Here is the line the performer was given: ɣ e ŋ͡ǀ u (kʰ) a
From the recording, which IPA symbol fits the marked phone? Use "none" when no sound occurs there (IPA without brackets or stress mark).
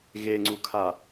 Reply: kʰ